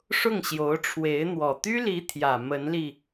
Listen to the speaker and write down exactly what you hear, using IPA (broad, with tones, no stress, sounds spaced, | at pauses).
ʂ ʊ˥˩ ŋ ɕ j o˧˥ ʊ̯ ʈ͡ʂʰ w e˧˥ ɪ̯ n̪ w ɔ˨˩ t̪ y˥ l i˧˥ t̪ʰ j ä˨˩ m ə˧˥ n l i˧